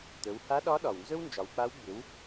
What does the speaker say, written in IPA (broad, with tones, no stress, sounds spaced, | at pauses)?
t̪ ɵ˩˧ w h a˧˥ ɗ ɒ˧˥ ɗ ɒ˩ w n z ɵ˥ w n d͡ʒ ɒ˩˧ w k͡p a˧˥ w ɡ͡b ʏ˩˧ w